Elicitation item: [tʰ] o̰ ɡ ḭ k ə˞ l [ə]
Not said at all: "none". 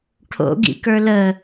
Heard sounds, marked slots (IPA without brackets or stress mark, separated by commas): ʈʰ, ə